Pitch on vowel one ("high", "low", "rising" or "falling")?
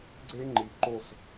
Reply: high